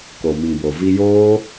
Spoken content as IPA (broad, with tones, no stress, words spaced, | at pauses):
ko˨mĩ˨bo˨ vi˧joː˦